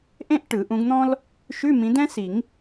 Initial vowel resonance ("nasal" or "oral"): nasal